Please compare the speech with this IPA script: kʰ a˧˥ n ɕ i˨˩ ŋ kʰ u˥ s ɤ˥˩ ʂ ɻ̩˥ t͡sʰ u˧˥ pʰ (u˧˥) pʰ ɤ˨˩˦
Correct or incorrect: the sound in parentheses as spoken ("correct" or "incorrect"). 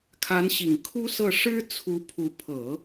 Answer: correct